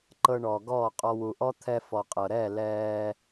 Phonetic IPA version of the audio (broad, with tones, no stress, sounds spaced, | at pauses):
ǃ ɤ˧ ɳ ɔː˨ ɡ ɔː˦˨ qʼ ɔ˧ w u˨ ʔ ɔ˦ t̪ʰ ɛ˧ f ɔ˨ qʼ ɤ˨ ɾ ɛː˦˨ l ɛː˧